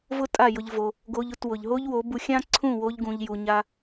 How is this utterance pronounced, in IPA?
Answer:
vʊ˦tʼa˦˨jʊ˧ʎ vo˧ | ɡo˧ʎ ʊ˦˨twʊ˨ʎɦo˦ʎ wo˨˦bu˧ xʲã˦ǀʰũ˦˨ wo˧ʎɡũ˨ʎju˨ɲa˧

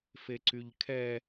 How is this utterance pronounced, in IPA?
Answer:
feǀyʎkʰɛ

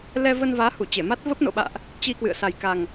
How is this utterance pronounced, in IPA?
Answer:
lɛ˧ və˧nvaː˨˦ hu˧˩t͡ɕe˧˩ma˦˥t̚ və˦˥p̚no̰˧˨ɓa̰ː˧˨ʔ | t͡ɕi˧kwɨ̰˧˨ə̯ sa˨˩jka˨˩ŋ

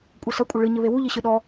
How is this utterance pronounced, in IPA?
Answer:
kʷʼɐsɐ kʷʼɘɭɨ ɲɘβewu ʎiɕɨɗɔ

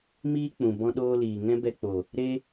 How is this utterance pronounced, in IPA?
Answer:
miː˦k͡pũ˨ bɔ̃˦ɗoː˦liː˨ ŋɛ̃˦bɛ˧k͡po˨ | ɾe˦

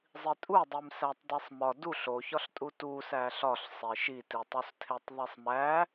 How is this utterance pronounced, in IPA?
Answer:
zˤitʼudˤim sætˤdisˤmɒ duɬ oçɒɬtʼu tusæ ɬɒɬsˤe ʃititˤustʰetˤ ðˤisˤmæ

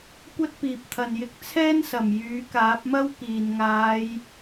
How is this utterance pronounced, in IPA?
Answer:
kʷɐ˥t̚piː˨p̚t̪ʰɐ˨njɪ˧k̚ t͡sʰɛː˥nsɐ˨˩m jyː˨˥kaː˨˥p̚mɐ˥w kiː˨˩nŋaː˨˧j

